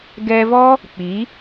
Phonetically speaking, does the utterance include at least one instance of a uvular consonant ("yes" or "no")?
no